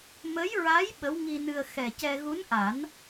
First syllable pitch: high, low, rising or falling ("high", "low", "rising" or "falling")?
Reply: rising